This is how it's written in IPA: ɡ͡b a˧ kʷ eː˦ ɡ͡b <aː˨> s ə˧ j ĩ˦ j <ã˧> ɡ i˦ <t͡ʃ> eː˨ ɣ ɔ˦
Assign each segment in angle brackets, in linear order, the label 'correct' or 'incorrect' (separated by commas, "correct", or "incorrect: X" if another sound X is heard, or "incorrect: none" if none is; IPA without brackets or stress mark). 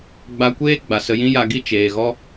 incorrect: a˨, incorrect: a˧, correct